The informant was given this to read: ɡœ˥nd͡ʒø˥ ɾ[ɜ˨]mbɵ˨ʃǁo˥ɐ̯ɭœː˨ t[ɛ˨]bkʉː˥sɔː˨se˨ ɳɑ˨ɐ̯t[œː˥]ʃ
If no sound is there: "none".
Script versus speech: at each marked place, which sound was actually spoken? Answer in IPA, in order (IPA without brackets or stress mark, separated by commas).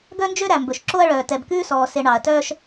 æ˨, ɛ˨, œː˥